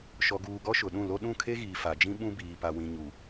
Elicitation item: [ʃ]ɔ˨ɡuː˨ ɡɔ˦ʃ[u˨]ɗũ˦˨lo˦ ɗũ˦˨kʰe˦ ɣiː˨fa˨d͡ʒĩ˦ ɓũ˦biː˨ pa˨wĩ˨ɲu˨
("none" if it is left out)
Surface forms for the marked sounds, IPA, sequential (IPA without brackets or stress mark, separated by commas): ʃ, ʊ˨